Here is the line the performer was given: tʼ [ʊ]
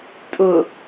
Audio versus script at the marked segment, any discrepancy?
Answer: no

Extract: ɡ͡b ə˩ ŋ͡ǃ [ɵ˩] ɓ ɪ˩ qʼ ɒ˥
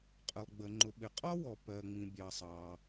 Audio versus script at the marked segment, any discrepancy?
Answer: yes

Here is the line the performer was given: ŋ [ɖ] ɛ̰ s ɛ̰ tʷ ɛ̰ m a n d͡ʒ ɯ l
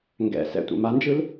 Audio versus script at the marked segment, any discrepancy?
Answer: yes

